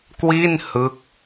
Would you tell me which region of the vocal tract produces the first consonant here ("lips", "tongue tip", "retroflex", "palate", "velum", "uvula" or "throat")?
velum